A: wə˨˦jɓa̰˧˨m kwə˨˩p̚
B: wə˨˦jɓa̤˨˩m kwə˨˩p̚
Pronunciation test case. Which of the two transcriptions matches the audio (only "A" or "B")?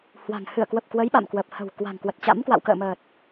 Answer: A